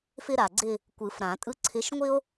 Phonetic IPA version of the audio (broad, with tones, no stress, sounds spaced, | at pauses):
f ɪ˦ ɾ a˩ ɡ͡ǀ ɪ˦˨ | kʷ ɯ˨˩˦ f ɾ ã˨˩˦ tʼ ɯ˦ ǀʰ ɪ˨˦ ʃ ŋʷ ɪ˦ o̯